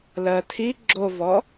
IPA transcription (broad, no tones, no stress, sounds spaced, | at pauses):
l ɜ tʰ i ɡ͡ǁ o v ɔ